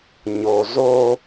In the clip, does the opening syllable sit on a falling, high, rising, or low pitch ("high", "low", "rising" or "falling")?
low